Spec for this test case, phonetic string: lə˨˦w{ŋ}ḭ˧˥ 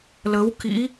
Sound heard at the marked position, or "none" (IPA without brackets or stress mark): k